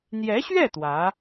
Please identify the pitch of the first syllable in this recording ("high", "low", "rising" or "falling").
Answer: rising